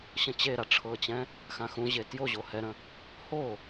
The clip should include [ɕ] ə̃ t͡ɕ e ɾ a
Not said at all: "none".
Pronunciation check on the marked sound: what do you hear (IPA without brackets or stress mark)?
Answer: ɕ